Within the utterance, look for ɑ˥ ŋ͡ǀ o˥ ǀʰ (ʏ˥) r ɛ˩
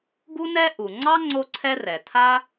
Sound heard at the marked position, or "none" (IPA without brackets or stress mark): ɛ˥